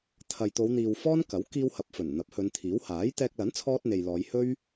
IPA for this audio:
t̪ʰɐ˨jt̪o˨˧w n̪iː˨w fɔː˥nkɐ˨˥w kiː˧whɐ˨p̚fɵ˨˩n n̪ɐ˨˥p̚hɵ˨˧nt̪ʰiː˨˥w haː˨˥jt̪ɛː˧k̚ lɐ˨˥nt͡sʰɔː˧t̚ n̪e˨jlɔː˨˧j hɵ˥ɥ

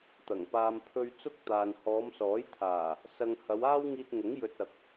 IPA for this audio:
t̪ɐ˨˩ŋpaː˧m pʰɵ˧ɥ t͡sʊ˥k̚t̪aː˨n hɔː˨˧msɔː˨˥jt̪ʰaː˨˩ | sɐ˧ŋ hɐ˨˧waː˥wŋiː˧t̚ŋʊ˨˥ŋ jɵ˧t̚ ɐ˨k̚

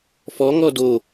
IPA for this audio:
fɔŋɔ do

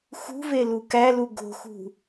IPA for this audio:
xṳvelu kælu ɡo̤xṳ

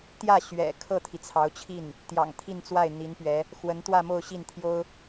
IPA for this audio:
t̪jä˥˩ ɕɥɛ̰˨˩ kʰɤ˥˩t̪ʰi˩t͡sʰɑ˧˥ʊ̯t͡ɕʰi˥˩n | t̪jɑ̰˨˩ŋt̪ʰi˥˧nt͡swa˥˩ɪ̯ n̪i˧˥npɥɛ˧˥ | xwə˧˥n t̪wä˥˧mo˥˧ʊ̯ɕi˥˩nt̪ʰjo˥ʊ̯

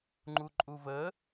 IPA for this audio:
ŋ͡ǃuǃʼuvə

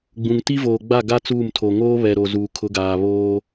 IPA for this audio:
ɡ͡bũ˨ŋ ti˦voː˨ɡ͡ba˦˨ ɡa˦ t͡suː˦˨mtʰo˨ ŋoː˦ βɛ˨ɾo˨ zuː˨kʰʊ˨˦ɡaː˨ βoː˦

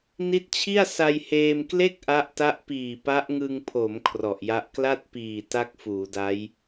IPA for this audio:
ni˦˥t̚t͡ɕʰi˥˩a̯ sa˧jheː˧mkle˥˩k̚ ʔa˦˥ʔta˦˥ʔpiː˨˩ pa˦˥ʔŋɯ˧ŋpʰo˩˦m kʰrɔ˨˩ʔja˦˥ʔ kla˥˩t̚piː˨˩ ta˥˩k̚ fuː˩˦da˦˥j

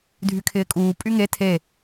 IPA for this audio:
dʱykʰɪːkʼuː pʼyŋe tʰe

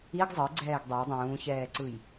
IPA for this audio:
iɡ zˤɯɡ͡ǀɛːɡ dˤe dˤũːçɛːǀɯj

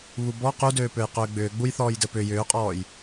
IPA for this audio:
βubɔ qudøː pøjqʏːɡ͡bʏː ɡ͡bujθɔːjdɘ pʏ jʏːqʼɔːj

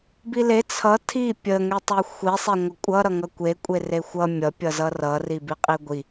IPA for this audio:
bile t͡sʰʌ tʰi pʲə ŋetˤexʷi sˤeŋʷəkʷʼʌ ɾʌŋʌkʷe kʷʼerexʷʌ mʲʌ pʲʌzʌrʌ ribiqʼiɡʷi

